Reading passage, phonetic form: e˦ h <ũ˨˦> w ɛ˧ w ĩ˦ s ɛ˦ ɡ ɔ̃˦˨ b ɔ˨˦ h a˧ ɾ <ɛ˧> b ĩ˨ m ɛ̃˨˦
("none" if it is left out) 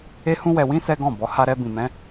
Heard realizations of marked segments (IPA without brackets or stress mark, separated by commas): ũ˦, ɛ˧